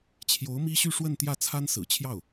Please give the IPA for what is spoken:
t͡ɕʰjo˧˥ʊ̯mi˥ɕy˥˧ ʂwə˥˧nt̪jä˥˩ t͡sʰa˥nsɹ̩˨˩t͡ɕʰjɑ˥˩ʊ̯

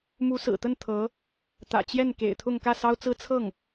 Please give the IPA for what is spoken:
mu˧˥sɹ̩˨˩t̪ə˥˩n t̪ʰɤ˧˥ | t̪ä̰˨˩t͡ɕjɛ˥˩nkḛ˨˩ɪ̯t̪ʰʊ˥˧ŋ kä˥˩sɑ˥ʊ̯t͡sɹ̩˥ t͡sʰɤ˥˩ŋ

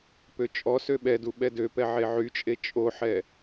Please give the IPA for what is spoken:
pøt͡ʃʼɔsø ɓɛdu ɓɛdøpɛ ʕeʕyt͡ʃʼe t͡ʃʼoħɛ

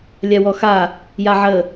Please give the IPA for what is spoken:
lʲawɔxa | jaʕə

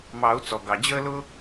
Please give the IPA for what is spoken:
mɑ˨˩˦u̯ t͡sɔ˩ɡɑ˩d͡ʑəː˥lʊ˥

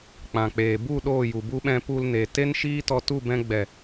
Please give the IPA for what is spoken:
k͡pã˨k͡peː˨ bu˦˨ ɗoː˦˨ju˨bu˦ɓɛ̃˧ pu˧lne˨ te˦n ʃiː˦tɔ˧ tu˦˨bɛ̃˧ɡ͡bɛ˨

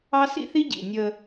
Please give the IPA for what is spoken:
ɑ˦sḭ˦θi˦ɟḭ˨ nʲəː˦

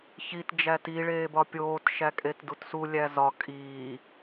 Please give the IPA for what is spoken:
çit d͡ʒæti ɭeːbɒpʲoːt ʃækʼetdutsu lʲæzɒ kʼiː

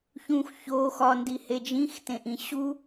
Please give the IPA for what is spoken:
çũx ço xɒndihe d͡ʒĩxtẽʔĩ ɕu

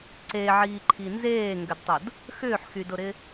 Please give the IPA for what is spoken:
ǀeʕiːǃʰi nzeːŋɡʏdtˤʊd | xʏːħxydʊɾɪ

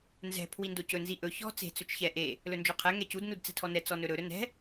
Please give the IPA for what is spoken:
nzɛ̤ pʰwindocɵ nziʔɵ çɔ̤ t͡se̤ t͡sɵt͡ʃçɛ ʔe | lɵnd͡ʒoqʰɛ ŋɛcud nudt͡sɛ̤tʰɔnɛ t͡sɔnɵɾɵ ɾɵnɛ̤

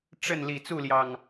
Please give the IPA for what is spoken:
ʈ͡ʂə˥˨n li˨˩t͡su˥˨ljɑ˨˩ŋ

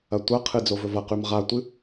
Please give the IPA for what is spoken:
ɐtʷɐqʰɨ d͡zovɵvɐqʉm ʁatʷɨ

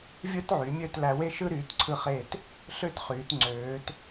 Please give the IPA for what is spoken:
vʲɯ˥t ʕy˩˧mʲø˥˧t læ˧we˥ ʃɯ˥ɾyː˩˧tǀʰɯ˧χe˧˩t | ɬø˥tχyː˩˧tŋ͡ǀøː˩˧t

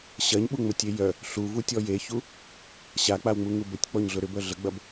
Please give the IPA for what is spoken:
ɕɐɲɓuŋ͡mətʲe jœ | ɬuvutʲɔ jeçu | ɕak͡pawŋ͡muŋu bətʲk͡pɔɲɮʊ ɾʏbœ ɮəɡ͡bɐb

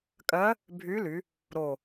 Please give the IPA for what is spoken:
kʼɜ˧˥ | bʱy˧˥ly˩˧ | ɾo˧˩

